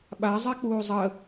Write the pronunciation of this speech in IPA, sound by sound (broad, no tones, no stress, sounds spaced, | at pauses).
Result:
ɓ a zˤ ɛ k͡p uː zˤ ə